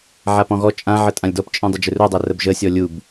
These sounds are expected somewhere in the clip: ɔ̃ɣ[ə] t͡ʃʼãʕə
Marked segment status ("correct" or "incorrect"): incorrect